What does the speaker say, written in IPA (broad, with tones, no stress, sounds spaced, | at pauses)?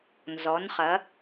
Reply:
n z ɔ˨˦ n χ ɐ˨˦